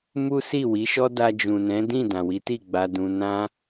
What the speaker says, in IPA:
m u˦ s i˦˨ w i˨˦ ʃ ɔ˦ d a˧ d͡ʒ ũ˨ n ɛ̃˨˦ d ĩ˦˨ d ã˨ w i˨˦ t i˦˨ ɡ͡b a˧ d ũ˧ n ã˦

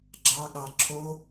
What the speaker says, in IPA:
ɡ͡ǁ ɑ ɠ ɑ ǁʰ o

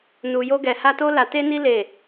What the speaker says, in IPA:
n u˧ j o˦ ɡ ɛ˧ h a˦ t o˦ l a˧ t e˦ n i˦ l e˦˨

